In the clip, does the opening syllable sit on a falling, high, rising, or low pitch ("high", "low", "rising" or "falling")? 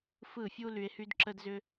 falling